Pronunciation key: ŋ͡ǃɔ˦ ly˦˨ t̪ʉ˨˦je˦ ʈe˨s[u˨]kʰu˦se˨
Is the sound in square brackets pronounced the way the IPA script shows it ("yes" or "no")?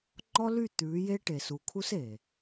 yes